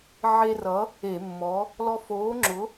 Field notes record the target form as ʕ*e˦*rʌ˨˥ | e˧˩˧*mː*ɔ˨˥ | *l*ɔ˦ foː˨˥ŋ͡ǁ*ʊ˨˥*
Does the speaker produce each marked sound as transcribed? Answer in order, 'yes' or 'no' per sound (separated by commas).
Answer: yes, yes, yes, yes